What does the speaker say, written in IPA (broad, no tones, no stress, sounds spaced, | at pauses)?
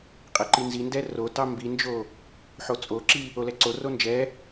qʼ ɛ ǃ i n z i n d ɛ r o t ɑ m b i n d͡ʒ o | ħ o t͡sʼ o ǁ i | o l ɛ ǀ o r o n d͡ʒ ɛ